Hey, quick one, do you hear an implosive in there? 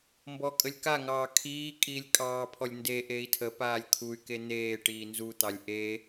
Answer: no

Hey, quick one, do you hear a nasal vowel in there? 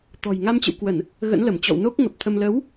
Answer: no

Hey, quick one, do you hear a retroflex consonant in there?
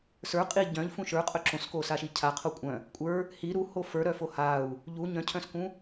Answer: no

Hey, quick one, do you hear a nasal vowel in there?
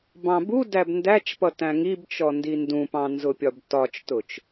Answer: yes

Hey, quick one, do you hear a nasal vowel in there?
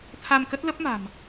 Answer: no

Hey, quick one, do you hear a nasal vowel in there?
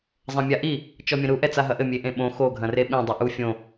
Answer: yes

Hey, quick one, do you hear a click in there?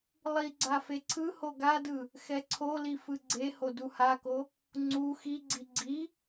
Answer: yes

